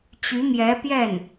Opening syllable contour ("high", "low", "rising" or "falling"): rising